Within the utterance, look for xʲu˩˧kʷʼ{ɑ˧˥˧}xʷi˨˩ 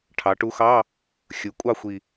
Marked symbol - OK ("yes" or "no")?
no